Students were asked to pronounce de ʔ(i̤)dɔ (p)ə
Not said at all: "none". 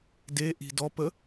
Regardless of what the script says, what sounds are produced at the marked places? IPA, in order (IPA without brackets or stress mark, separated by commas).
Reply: i̤, p